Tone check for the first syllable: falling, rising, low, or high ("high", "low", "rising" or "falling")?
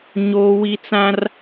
high